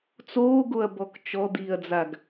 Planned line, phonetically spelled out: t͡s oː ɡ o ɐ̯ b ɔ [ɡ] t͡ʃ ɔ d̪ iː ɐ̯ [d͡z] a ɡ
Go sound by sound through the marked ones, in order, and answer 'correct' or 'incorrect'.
incorrect, correct

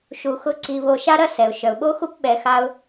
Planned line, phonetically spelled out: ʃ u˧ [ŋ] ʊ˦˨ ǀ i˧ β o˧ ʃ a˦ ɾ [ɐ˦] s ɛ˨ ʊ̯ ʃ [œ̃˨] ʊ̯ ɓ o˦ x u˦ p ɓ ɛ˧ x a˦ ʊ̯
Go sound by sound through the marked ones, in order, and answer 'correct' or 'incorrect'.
incorrect, correct, incorrect

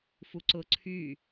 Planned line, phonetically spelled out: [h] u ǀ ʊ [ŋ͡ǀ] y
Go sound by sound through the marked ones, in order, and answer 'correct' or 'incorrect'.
incorrect, incorrect

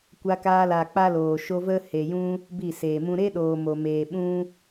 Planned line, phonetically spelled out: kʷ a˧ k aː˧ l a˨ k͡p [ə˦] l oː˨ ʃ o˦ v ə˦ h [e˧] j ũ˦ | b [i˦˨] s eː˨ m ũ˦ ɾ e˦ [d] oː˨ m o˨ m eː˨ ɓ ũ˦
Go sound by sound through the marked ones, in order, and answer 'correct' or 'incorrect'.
incorrect, incorrect, correct, incorrect

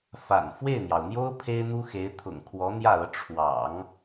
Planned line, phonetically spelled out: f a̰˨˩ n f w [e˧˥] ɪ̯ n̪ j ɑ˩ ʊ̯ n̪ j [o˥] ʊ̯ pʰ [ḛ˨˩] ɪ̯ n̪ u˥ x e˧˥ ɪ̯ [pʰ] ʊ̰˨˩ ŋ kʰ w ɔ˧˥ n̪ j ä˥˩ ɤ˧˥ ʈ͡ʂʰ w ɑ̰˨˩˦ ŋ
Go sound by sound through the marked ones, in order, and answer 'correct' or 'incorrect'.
incorrect, correct, incorrect, incorrect

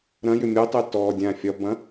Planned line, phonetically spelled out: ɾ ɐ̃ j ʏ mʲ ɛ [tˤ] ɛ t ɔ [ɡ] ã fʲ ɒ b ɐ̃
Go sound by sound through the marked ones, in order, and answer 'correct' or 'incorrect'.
correct, incorrect

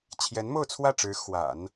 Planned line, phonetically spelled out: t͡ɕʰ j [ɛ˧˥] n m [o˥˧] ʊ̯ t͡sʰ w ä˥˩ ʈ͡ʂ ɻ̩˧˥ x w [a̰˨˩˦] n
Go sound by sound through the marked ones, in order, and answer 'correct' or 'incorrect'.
correct, correct, correct

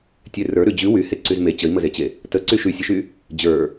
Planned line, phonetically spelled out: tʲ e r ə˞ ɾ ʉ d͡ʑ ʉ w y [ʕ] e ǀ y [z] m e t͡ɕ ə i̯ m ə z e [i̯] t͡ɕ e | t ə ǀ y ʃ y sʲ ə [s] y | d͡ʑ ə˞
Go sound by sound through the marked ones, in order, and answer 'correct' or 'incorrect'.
incorrect, correct, incorrect, incorrect

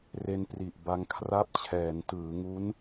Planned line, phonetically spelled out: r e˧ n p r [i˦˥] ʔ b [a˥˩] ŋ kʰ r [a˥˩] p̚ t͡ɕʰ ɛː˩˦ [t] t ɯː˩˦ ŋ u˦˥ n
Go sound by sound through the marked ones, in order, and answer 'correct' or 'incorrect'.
incorrect, incorrect, correct, incorrect

